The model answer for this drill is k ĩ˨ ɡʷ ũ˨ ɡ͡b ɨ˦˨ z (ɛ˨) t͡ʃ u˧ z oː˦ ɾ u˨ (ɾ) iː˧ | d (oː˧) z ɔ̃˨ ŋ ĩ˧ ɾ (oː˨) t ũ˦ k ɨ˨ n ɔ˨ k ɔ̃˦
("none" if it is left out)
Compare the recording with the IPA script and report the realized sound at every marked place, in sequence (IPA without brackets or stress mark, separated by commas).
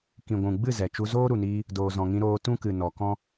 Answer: ɛ˨, n, oː˨, oː˧